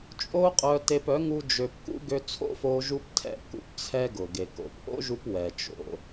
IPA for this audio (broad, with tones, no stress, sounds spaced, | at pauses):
t͡ʃʼ o˦ qʼ œ˧ t e˧ p œ˨˦ ŋ u˦ d͡ʒ ø˧ p k ṵ˦ ɡ ø˧ t͡sʰ o̰˦ f o˧ ʒ u˦ p tʰ ɛ̰˦ k ṵ˧ p t͡sʰ ɛ˦ ɡ ʊ˨ ɡ e˨ k o̰˨ p ʔ o̰˦ ʒ u˧ p w ɛ˨ t͡ʃ o̰˧